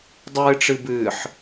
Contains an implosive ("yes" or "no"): no